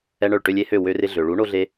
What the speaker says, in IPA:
ɛ˦ ɳ œ˦˨ ɭ ʈ ø˦ lʲ e˦ h ø˦˨ w ø˦ r ɪ˦ ɮ ø˨ ɭ u˨˥ ɳ o˦ ɮ e˦

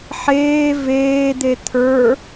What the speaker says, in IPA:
ħ eː v eː d̪ e t̪ʰ ə˞

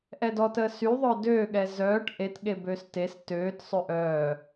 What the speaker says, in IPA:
ʔ ɛ d ɔ t əː s y ðˤ œ d øː ɠ ɛ z œː ʈ ʔ e t ɠ e b øː s t e s t øː t sˤ ø ʔ œː

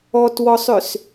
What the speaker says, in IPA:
ɔ t w ɔ sˤ ʏ s

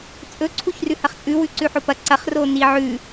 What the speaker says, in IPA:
t͡sʼ ɵ ǀʰ u ç r ʉ h ɐ χ t͡sʼ ʉ w ʉ ǀ ʉ ħ o p ɐ ǀ ɐ χ r o n i ʕ ʉ

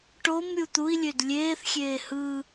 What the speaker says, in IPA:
ʈ o m ɾʲ u t̪ u i̯ lʲ ø d lʲ eː θ xʲ eː h ɯ

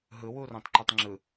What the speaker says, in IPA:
ɦ ɯ w u r õ tˤ ǃ ɛ tˤ ŋ͡ǁ ɯ

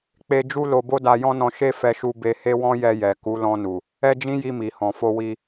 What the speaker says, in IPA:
k͡p e˧ d͡ʒ u˦ l o˧ b o˦ d a˧ j ɔ̃˦ n ɔ̃˧ ʃ e˦ f ɛ˧ ʃ u˧ b e˧ h e˦ w ɔ̃˦ j ɛ˧ j ɛ˨ k u˨˦ l ɔ̃˧ n u˨ | ɛ˦ d͡ʒ ĩ˦ j i˧ m i˨ h ɔ̃˨ f o˧ w i˧

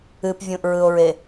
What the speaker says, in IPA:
ɨ p vʲ ũ ʔ ɹ ɯ o̯ ɹ e

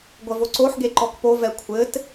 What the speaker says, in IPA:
ɡʷ ɐ v o ǀ o ħ ɡ e ǃ ɔ k p o v ɛ kʷʰ ɘ t

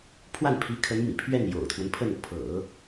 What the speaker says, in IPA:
pʰ w a˥˩ n pʰ i˧˥ kʰ ə˧˥ n m ḭ˨˩ pʰ ɥ ɛ˥˩ n j o̰˨˩ ʊ̯ t̪ʰ w ə˦ n pʰ ə˥˩ n pʰ ɤ̰˨˩˦

